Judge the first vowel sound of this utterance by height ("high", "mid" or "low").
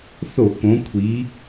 mid